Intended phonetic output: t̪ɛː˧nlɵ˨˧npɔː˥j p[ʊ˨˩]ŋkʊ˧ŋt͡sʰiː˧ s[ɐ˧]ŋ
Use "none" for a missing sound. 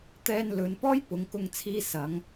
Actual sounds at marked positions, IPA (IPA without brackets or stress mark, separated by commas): ʊ˨˧, ɐ˨˧